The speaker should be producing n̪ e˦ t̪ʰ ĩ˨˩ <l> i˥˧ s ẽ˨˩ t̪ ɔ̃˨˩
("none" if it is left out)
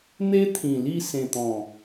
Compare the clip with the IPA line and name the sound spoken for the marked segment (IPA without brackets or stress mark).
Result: l